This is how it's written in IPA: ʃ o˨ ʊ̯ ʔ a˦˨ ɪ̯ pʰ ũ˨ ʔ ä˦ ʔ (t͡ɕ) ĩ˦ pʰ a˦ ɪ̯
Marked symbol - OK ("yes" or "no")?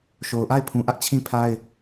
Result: no